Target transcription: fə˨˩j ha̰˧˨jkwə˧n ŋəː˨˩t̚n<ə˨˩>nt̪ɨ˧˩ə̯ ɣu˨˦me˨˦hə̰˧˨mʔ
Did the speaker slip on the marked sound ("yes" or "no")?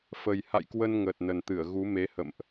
no